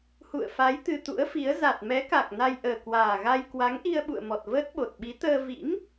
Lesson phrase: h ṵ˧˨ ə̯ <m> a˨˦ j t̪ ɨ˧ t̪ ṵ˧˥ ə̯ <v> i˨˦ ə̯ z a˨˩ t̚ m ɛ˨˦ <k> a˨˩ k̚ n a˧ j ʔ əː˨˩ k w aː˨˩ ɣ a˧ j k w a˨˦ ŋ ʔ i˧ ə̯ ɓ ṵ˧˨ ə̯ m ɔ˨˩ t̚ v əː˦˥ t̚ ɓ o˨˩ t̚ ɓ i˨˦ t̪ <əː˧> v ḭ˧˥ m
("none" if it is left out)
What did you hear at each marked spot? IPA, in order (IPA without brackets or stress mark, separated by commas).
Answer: f, f, k, əː˧